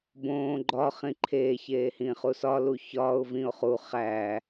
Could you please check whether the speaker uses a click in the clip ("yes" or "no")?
yes